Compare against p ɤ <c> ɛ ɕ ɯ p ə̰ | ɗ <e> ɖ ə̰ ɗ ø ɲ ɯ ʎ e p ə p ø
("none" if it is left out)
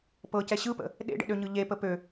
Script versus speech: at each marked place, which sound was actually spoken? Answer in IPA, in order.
c, ḛ

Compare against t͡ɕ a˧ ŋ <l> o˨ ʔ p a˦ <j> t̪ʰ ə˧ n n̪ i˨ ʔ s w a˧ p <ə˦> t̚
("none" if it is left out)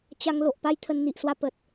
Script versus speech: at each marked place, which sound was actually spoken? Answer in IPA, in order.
l, j, ə˨

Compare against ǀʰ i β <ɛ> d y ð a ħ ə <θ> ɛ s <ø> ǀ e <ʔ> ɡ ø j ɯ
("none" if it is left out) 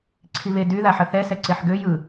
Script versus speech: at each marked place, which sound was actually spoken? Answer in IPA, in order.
e, θ, ɛ, ħ

